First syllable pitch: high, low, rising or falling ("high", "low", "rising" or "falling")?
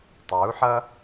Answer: rising